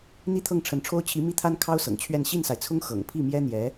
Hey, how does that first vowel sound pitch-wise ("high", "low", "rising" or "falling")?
high